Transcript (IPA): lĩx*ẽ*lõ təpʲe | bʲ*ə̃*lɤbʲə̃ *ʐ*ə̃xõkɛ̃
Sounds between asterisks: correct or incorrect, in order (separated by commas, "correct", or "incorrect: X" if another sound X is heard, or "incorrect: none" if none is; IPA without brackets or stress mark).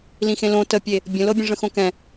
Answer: correct, correct, correct